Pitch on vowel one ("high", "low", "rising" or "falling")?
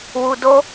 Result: low